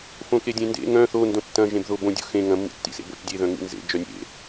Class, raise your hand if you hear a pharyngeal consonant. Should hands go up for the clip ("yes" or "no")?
no